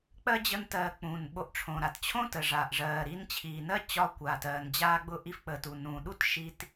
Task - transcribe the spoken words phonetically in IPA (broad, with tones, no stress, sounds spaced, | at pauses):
k͡p ɜ˥ d͡ʑ ə˥ n t ɜː˧ k͡p ũː˩ n ɓ o˧ ʔ ʈ͡ʂʰ õ˩ ɾ a˩ t t͡ɕʰ õ˥ t ə˩ ʐ aː˩ ʔ ʐ ɜː˩ ɾ i˧ n t͡ɕʰ iː˩ n ɜ˥ t͡ɕ ɒ˧ kʷ aː˩ t ɜː˩ n d͡ʑ aː˧ ɡ͡b ʊ˧ ʔ i˧ f k͡p ə˩ t u˩ n ũː˩ ɗ u˥ t ʃ i˧ t